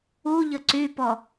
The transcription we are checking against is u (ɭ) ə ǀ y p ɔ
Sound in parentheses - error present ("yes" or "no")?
yes